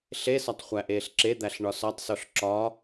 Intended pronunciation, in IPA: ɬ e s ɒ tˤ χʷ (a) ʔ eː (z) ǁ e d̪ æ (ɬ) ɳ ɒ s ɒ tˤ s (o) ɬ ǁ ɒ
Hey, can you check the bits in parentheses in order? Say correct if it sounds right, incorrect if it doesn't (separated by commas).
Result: incorrect, incorrect, correct, correct